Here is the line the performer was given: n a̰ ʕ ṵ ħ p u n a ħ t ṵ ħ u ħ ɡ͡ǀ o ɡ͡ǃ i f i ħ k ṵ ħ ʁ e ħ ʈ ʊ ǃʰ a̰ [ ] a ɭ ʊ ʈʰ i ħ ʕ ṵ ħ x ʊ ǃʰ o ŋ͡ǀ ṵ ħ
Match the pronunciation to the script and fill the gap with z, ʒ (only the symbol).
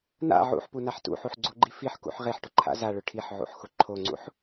z